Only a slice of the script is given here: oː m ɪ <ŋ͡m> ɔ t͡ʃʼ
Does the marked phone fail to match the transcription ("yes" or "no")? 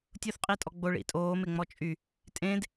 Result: no